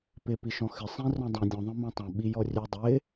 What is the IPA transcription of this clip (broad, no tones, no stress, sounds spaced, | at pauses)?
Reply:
p ɪ p i ʃ ɔ̃ x ɪ sˤ ĩ r ɔ̃ dˤ ĩ dʲ ɔ̃ ðˤ ɛ̃ m ã tˤ ɛ̃ ɓ i j ɔ rʲ ʉ dˤ ɪ